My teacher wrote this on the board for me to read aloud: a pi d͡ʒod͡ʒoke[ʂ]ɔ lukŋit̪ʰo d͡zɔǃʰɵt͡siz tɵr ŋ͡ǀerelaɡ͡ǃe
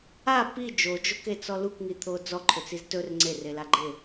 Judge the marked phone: incorrect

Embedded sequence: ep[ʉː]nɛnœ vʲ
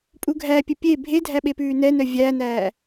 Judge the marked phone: correct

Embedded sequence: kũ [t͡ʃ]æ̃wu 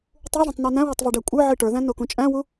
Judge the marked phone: incorrect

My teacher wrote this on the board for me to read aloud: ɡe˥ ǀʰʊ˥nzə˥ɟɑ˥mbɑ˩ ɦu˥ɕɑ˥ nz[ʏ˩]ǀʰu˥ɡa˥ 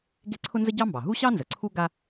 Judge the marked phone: incorrect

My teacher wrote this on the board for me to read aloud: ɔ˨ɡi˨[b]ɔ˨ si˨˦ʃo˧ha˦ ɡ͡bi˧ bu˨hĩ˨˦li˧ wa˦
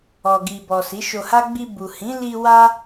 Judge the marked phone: correct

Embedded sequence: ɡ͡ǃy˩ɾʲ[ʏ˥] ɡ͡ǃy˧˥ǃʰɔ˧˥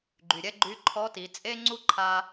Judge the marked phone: incorrect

